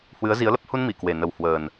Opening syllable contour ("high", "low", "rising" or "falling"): rising